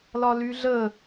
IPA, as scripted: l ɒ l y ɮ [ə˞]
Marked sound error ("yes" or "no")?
yes